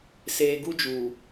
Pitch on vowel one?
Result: low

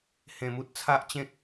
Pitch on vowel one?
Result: low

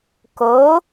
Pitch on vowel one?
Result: rising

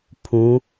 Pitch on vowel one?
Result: rising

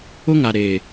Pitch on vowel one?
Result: high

